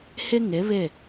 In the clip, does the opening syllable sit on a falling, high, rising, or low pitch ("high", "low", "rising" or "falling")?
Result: high